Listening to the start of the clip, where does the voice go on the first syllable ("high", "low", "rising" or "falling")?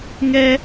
high